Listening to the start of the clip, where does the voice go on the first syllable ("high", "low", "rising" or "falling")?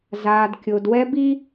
low